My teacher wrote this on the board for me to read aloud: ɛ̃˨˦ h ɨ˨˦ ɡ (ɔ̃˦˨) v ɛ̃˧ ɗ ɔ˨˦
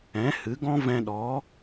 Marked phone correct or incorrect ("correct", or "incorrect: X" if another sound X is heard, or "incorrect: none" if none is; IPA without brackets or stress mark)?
incorrect: ɔ̃˦